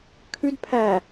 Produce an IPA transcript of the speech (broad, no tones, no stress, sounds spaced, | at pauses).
kʰ ʉ d pʰ æ